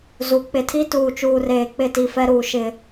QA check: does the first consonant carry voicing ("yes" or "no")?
yes